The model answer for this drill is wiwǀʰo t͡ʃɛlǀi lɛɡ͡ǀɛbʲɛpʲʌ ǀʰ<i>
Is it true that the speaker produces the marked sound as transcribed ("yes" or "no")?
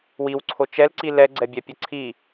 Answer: yes